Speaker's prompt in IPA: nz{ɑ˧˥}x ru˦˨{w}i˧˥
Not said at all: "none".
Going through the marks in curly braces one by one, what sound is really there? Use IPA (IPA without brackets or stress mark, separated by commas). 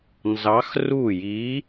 ɑ˧˥, j